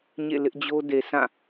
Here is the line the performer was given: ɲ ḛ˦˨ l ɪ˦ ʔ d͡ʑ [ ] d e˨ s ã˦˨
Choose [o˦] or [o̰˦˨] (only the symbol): o˦